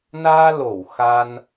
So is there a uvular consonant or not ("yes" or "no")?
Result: no